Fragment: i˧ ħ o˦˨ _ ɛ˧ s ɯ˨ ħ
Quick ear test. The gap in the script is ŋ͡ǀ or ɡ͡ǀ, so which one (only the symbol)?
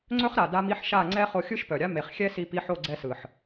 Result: ɡ͡ǀ